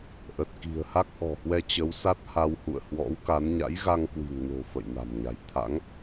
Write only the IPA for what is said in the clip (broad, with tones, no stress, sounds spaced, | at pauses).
ʔ ə˨˩ t̚ k i̤˨˩ ə̯ h a˦˥ k̚ ʔ ɔ̤˨˩ h w ɛ˧ t͡ɕ ə˨˦ w s a˦˥ t̚ h a˧ w h ṵ˧˨ ə̯ h w ɔ̰˧˥ w k a˨˦ n ɲ a̰˧˥ j ɣ a˧ ŋ k w i̤˨˩ ŋ n o̤˨˩ f ə̰˧˨ j n a̤˨˩ m ɲ a̤˨˩ j t̪ʰ a̰˧˥ ŋ